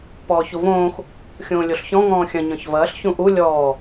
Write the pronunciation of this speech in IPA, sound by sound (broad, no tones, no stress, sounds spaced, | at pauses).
p ɔː ç u v õː x | xʲ õː lʲ o ɬ ç ɔ̃ ŋ ɔ̃ː xʲ ɐ̃ ɲ ɔ̃ ç v ɐː ɬ ç ũ ʔ u lʲ ɔː